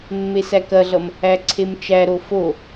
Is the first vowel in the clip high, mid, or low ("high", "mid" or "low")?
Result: mid